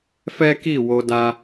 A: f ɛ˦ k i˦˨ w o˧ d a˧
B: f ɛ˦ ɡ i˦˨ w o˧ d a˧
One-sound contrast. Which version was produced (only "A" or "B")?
A